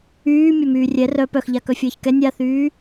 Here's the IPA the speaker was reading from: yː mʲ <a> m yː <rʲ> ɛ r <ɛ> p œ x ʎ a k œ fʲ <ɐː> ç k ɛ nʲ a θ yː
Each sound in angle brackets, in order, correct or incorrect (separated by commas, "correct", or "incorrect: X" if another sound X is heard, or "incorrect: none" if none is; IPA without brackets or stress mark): incorrect: ɐ, correct, incorrect: œ, correct